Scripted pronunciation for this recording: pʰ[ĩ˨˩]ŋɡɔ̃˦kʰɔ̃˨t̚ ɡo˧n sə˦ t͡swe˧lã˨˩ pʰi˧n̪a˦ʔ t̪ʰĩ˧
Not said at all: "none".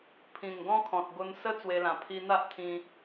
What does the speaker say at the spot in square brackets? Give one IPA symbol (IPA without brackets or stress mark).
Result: ĩ˨˩